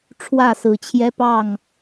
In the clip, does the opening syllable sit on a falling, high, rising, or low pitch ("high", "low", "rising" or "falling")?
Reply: falling